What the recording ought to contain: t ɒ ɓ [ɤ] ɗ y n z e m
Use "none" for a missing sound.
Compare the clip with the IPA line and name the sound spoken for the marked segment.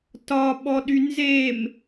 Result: ɔ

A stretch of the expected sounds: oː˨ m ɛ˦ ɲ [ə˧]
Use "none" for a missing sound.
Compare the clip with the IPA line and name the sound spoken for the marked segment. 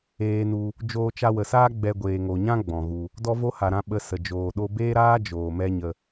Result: ə˧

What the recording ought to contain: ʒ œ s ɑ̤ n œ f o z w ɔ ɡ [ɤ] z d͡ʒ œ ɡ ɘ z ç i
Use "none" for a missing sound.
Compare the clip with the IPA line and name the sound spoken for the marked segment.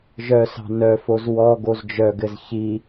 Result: o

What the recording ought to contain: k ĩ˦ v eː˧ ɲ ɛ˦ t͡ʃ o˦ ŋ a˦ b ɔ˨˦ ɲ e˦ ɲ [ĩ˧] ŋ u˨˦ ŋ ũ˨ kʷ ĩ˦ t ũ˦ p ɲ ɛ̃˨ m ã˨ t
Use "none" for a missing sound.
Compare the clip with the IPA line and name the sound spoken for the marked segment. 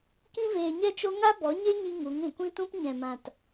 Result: i˧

